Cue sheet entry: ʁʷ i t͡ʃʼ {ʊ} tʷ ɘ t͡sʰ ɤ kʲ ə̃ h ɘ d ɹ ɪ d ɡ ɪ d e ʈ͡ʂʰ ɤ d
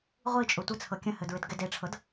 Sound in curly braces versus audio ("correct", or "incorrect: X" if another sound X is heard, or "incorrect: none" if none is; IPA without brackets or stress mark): correct